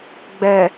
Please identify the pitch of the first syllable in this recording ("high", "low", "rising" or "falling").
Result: low